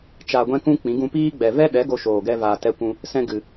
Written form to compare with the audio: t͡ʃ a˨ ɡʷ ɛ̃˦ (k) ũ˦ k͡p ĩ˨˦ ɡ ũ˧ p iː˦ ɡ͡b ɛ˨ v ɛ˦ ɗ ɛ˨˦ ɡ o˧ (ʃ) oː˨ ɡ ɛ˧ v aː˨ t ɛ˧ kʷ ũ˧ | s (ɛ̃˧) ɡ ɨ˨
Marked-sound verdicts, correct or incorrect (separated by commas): correct, correct, correct